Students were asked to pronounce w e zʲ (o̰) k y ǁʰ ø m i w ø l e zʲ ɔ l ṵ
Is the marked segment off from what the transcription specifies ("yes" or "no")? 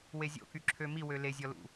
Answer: no